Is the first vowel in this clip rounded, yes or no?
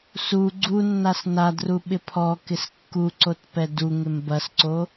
yes